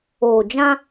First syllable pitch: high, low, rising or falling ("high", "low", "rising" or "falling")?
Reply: low